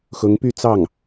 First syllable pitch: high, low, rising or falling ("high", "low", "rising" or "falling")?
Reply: rising